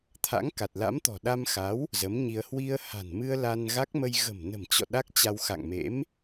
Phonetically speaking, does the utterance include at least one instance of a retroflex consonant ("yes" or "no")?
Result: no